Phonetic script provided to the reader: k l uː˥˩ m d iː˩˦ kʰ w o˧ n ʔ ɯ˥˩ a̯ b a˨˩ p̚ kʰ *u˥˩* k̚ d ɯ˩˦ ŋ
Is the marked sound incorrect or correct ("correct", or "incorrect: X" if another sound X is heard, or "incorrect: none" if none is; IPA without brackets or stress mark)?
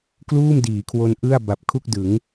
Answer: correct